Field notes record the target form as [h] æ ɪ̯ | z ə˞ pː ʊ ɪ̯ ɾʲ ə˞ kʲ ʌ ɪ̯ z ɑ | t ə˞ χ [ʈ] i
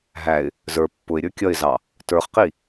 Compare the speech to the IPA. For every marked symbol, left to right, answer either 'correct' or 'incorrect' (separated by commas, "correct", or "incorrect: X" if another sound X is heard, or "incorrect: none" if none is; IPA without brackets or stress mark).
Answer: incorrect: ɦ, incorrect: q